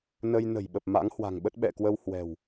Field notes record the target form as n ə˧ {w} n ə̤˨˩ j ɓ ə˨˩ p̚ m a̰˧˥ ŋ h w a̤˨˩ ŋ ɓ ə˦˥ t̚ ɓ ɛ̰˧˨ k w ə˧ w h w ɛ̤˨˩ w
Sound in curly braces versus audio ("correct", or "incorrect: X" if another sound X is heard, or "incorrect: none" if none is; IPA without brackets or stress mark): incorrect: j